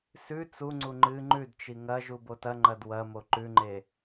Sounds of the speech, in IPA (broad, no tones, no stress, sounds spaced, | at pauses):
s ʉ t͡s u ŋ͡ǀ u ŋ͡ǃ ɨ ŋ͡ǃ ʉ d t͡ʃ i ŋ ɐ ʒ u b o t ɐ ŋ͡ǃ ɐ d w ɐ m o ǃ ʉ ŋ͡ǃ e